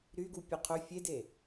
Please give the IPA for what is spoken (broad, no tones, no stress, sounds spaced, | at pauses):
ɾ y ɡ u pʲ ø qʰ ø fʲ e d e